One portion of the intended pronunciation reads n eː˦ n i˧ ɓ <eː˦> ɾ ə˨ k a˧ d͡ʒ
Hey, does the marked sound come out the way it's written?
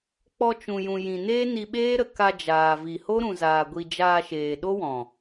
yes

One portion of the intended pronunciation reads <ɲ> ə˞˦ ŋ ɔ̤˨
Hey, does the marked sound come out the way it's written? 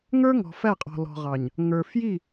no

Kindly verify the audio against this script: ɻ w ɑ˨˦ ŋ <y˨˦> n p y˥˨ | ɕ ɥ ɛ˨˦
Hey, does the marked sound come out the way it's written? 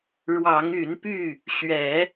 yes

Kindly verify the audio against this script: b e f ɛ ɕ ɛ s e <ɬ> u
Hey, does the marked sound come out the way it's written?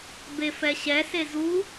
no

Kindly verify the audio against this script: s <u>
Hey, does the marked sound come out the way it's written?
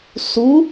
yes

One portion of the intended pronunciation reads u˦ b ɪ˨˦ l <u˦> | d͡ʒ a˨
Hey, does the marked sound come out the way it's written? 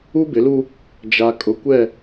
yes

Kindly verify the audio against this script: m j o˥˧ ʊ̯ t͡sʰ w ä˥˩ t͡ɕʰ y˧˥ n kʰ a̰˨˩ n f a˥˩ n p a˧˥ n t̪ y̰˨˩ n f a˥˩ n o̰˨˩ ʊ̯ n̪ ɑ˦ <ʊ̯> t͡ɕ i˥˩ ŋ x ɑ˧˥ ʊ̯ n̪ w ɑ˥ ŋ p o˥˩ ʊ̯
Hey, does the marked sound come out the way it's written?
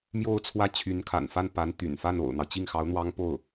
yes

